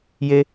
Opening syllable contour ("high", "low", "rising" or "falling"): high